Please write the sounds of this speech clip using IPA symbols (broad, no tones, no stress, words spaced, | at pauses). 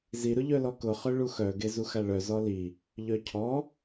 zi ɾʊʎœlɔkʊ χœɭuxœ ɡezuxaɭœ zɔli | ʎœcʰɔ